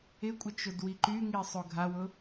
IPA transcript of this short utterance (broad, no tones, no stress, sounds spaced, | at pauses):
ɪ kʷʼ ɪ t͡ʃ ʊ d w i ǃ y ŋ i sˤ o ɡʱ a w ʊ